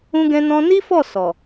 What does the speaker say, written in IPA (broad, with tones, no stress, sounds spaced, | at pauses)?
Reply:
ũ˦ ɡ ɛ̃˦ n ɔ̃˦ n i˦ f ɔ˦˨ s ɔ˨